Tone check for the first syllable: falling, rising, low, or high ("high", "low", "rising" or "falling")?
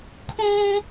high